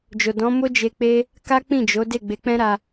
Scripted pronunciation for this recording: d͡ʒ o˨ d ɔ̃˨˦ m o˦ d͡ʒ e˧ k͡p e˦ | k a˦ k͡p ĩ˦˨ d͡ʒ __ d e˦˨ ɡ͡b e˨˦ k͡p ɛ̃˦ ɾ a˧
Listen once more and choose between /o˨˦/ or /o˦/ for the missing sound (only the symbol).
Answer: o˨˦